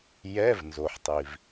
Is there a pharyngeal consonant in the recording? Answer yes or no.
yes